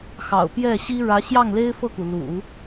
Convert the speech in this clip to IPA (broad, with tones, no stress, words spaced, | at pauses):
xɑ̰˨˩ʊ̯pjɛ˥˩ɕi˥ ɻä˧˥ɕjɑ˥˩ŋ le˥ɪ̯fɤ˥˩ku˩lṵ˨˩˦